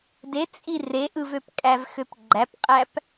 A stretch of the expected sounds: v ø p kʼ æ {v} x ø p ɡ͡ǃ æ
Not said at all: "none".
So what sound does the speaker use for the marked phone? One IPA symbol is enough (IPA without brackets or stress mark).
v